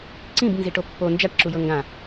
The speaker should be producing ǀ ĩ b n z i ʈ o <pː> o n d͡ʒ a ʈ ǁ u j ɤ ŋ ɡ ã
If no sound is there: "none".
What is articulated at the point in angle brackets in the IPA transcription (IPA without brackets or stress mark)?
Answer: pː